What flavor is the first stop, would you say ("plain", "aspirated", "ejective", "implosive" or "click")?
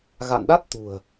implosive